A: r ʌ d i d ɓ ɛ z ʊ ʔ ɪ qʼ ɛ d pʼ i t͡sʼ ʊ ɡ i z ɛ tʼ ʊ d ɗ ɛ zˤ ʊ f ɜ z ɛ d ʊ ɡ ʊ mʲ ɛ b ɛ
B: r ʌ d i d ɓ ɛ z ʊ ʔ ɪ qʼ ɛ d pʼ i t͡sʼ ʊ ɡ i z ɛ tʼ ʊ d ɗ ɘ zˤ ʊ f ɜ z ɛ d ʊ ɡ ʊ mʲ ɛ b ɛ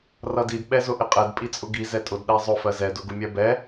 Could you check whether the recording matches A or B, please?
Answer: A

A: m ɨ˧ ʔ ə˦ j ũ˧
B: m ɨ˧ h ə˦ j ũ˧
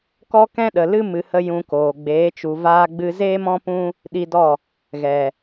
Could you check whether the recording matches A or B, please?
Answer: B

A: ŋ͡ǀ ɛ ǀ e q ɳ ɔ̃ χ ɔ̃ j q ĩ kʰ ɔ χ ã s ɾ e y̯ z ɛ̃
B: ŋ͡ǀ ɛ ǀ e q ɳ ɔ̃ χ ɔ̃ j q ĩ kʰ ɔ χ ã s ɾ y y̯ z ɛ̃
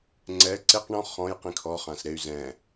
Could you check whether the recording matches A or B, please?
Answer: A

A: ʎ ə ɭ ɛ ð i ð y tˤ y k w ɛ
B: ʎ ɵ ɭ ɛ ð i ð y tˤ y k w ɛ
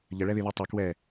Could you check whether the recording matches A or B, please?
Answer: A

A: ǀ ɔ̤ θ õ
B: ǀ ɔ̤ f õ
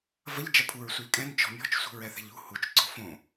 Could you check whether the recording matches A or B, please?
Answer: B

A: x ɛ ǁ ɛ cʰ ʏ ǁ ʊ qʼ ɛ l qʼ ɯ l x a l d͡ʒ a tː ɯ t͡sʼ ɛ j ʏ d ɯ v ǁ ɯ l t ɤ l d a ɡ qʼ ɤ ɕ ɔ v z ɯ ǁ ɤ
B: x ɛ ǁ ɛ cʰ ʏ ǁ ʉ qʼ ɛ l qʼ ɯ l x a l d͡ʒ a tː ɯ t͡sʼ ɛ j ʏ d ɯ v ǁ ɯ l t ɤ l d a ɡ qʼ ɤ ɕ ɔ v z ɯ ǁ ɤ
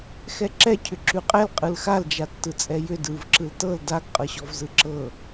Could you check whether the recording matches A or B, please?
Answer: B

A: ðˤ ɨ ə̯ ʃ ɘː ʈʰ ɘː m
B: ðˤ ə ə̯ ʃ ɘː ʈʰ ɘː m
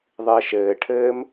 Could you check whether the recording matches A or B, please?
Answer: A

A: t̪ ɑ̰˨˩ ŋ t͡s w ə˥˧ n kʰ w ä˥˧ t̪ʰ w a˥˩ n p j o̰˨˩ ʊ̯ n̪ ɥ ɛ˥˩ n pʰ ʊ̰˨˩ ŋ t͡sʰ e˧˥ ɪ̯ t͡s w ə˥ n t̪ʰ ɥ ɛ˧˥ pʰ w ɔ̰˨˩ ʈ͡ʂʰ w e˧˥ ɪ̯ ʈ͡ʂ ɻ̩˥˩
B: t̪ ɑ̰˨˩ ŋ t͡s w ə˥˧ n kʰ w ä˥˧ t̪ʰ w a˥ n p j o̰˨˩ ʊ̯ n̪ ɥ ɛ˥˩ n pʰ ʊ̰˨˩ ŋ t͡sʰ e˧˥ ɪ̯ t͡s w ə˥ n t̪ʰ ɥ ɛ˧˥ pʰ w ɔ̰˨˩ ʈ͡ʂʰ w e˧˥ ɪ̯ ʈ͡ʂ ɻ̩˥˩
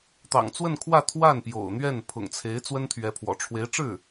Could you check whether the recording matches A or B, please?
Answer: A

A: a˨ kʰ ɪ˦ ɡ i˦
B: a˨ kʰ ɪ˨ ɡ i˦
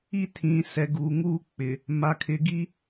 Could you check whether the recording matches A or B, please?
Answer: B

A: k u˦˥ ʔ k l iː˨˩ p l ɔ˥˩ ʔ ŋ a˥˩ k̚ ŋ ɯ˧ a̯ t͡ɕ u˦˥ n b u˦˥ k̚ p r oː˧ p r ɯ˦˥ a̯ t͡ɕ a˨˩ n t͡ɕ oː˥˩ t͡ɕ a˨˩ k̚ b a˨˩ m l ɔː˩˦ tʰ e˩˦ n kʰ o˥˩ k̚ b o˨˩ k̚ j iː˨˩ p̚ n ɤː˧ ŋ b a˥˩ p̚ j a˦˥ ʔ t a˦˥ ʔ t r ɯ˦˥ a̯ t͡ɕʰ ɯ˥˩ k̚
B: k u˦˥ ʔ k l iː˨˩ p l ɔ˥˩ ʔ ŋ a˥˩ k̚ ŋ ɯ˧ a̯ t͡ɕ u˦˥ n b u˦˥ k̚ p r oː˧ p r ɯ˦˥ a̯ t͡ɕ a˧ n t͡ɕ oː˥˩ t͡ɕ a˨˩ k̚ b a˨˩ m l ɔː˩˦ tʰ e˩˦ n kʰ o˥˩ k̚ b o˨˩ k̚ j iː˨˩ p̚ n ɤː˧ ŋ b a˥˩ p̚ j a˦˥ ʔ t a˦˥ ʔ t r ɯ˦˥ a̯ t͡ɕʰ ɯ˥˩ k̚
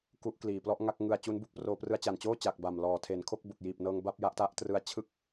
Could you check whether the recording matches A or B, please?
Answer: A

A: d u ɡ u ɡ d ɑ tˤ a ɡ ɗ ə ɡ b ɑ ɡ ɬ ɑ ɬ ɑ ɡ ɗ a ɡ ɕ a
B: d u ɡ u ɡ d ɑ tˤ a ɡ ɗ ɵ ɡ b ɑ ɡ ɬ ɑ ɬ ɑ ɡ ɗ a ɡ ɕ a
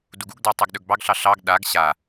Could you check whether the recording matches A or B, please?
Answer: B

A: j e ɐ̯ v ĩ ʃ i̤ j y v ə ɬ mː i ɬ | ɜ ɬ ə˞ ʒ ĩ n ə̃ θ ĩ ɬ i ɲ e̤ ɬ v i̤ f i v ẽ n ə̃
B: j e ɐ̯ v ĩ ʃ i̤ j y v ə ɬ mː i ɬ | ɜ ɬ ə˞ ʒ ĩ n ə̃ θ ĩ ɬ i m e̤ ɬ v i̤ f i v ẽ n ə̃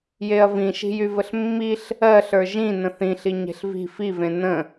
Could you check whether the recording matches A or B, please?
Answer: A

